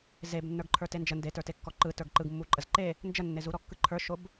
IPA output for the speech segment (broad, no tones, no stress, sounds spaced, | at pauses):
z e b nː ə˞ ɡ ǃʰ ə˞ t e n d͡ʒ ə n d e t ə˞ t e kː ɔ ǃ ɯ t ə˞ ɡ ǃ ɯ ɡ mː u ǃʼ ə z ǃ e | n d͡ʒ ə nː e z u ɾ ɔ kː ɯ ǃʰ ə˞ ʃ o b